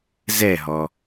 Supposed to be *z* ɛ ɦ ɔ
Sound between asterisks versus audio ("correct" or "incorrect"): correct